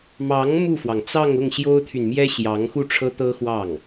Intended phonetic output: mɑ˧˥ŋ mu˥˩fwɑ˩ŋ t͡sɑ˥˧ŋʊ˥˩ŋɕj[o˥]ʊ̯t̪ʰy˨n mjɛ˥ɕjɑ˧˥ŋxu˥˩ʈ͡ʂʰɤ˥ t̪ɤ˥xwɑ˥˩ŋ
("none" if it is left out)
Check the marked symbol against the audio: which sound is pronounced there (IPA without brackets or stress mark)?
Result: o˥